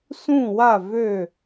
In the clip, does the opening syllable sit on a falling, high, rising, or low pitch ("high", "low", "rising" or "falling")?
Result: falling